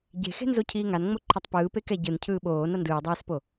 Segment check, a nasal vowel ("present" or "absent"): absent